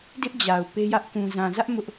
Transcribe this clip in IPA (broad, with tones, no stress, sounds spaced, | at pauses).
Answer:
d ɪ˦ ʔ d͡ʑ a˨ ʊ̯ p e˦ j ä˦ ʔ k ũ˨ z ã˨ z ä˦ ʔ m ʊ˦ ʔ